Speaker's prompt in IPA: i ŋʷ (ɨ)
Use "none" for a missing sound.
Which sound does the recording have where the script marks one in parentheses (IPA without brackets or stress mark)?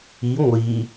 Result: i